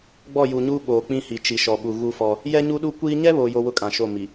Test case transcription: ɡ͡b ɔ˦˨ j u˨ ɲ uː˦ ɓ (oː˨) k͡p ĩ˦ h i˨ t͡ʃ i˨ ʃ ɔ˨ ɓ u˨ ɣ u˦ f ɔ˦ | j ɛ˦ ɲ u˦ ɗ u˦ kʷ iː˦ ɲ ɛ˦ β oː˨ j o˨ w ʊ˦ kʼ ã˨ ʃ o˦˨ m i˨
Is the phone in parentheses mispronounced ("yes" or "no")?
no